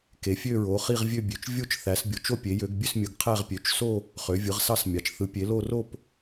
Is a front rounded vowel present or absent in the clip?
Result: present